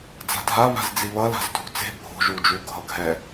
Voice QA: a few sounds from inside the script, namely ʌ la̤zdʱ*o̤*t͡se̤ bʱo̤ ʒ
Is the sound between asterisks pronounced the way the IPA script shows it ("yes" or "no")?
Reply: no